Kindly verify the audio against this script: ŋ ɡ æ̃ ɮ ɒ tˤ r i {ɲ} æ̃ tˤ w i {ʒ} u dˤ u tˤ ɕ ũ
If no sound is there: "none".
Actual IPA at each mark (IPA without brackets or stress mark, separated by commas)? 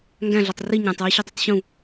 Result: ɲ, ɕ